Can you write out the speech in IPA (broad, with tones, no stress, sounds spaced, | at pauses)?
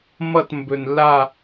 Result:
m ʌ˥˧ t m b ɵ˧ n lː a˥˧